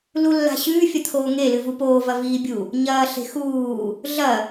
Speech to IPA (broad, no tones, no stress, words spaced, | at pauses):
lulːa̤ɕʉː fʲɐt̪ʰoːŋelɨ vupoː vɐviːbʲu | ɲɐː ɬe̤xuː | ɮɐ